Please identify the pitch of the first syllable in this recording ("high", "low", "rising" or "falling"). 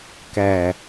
low